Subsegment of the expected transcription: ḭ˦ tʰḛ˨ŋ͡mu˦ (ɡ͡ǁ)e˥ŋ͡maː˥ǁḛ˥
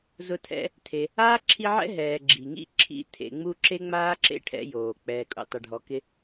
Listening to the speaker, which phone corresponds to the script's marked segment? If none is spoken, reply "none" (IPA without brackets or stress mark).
ǁ